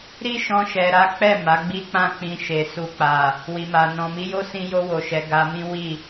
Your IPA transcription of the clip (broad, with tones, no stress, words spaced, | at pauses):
ɾi˦ʃɔ̃˧ʃɛ˨ ɾa˨˦k͡pɛ˦˨ ma˨˦ɡ͡bi˦k͡pã˦˨ k͡pĩ˧ʃe˨ su˨k͡pa˨ | wi˨ma˨ nɔ̃˨mi˨˦jo˦ sĩ˧jo˧wo˨ʃɛ˨ ɡa˧mĩ˦ wi˦˨